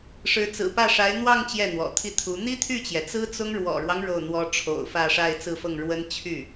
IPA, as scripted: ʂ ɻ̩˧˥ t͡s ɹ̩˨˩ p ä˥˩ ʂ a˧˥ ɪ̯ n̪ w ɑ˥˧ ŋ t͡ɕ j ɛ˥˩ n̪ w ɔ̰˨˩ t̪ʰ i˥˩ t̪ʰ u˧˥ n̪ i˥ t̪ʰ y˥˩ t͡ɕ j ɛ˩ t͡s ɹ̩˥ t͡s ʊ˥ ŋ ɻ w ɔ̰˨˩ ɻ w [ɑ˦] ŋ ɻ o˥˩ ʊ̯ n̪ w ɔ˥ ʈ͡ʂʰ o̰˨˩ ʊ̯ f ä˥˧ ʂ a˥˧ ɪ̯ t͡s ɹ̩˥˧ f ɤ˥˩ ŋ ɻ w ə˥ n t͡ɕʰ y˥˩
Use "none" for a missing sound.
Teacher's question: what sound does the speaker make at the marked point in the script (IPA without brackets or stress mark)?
ɑ˦